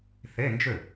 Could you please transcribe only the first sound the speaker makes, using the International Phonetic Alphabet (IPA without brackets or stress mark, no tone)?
θ